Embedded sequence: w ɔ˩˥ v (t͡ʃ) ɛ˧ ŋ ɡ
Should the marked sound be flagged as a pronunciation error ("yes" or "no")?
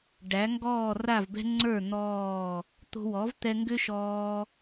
yes